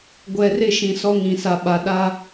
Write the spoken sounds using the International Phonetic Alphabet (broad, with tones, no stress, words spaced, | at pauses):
ɡʷɛ˨rɪ˦˨ ʃĩ˨sɔ˦ŋĩ˨sa˨ ɓa˨ɗa˦